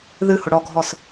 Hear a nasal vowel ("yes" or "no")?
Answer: no